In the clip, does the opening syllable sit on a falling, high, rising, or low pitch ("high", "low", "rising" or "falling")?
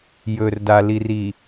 low